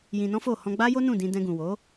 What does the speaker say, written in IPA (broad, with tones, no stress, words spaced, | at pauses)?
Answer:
jĩ˧nɔ̃˦ fo˦˨ hɔ̃˧ɡ͡ba˦jo˦ nũ˦˨dĩ˧ dɛ̃˧ɡũ˨wo˨˦